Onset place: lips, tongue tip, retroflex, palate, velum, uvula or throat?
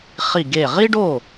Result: uvula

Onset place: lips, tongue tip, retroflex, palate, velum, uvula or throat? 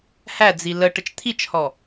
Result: throat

